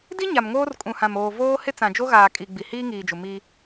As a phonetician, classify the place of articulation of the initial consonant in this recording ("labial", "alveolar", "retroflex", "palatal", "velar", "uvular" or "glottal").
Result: alveolar